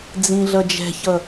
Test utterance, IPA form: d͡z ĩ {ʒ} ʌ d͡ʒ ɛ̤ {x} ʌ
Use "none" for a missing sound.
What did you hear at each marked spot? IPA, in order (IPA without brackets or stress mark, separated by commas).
ɮ, ç